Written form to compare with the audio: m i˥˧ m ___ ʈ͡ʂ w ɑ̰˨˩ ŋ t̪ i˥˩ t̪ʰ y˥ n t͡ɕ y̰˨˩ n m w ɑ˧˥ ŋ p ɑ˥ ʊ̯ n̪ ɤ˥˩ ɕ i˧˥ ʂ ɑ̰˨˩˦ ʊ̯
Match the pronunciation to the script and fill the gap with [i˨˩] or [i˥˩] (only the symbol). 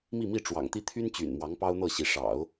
i˥˩